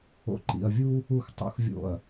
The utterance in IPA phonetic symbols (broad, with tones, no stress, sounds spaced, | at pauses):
o̰˨ ǃ ḭ˨ ɐ̯ vʲ u˦ | u˨ x tˤ ṵ˨ x vʲ o̰˨ ɐ̯